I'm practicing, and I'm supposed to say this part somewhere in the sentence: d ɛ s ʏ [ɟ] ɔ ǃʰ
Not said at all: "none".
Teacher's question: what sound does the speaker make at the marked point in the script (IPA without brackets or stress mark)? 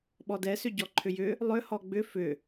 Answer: ɟ